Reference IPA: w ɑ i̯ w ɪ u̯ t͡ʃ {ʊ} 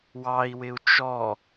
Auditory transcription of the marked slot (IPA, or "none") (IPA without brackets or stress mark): ɔ